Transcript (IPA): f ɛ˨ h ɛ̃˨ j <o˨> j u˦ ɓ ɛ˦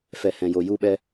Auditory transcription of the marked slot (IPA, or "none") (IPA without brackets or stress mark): o˨